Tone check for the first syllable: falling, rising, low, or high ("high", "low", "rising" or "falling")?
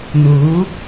rising